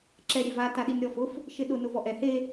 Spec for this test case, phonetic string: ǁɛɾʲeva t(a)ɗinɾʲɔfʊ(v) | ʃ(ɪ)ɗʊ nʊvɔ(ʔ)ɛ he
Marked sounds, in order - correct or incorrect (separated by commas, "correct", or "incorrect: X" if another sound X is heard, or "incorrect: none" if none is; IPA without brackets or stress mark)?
correct, incorrect: f, correct, correct